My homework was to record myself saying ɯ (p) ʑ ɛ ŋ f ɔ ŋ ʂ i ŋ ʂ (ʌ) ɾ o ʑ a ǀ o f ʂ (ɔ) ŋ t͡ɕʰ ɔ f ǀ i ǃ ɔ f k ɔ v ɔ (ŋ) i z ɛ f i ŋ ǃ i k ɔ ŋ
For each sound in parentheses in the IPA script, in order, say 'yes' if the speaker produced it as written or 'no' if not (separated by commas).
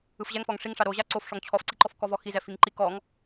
no, no, yes, no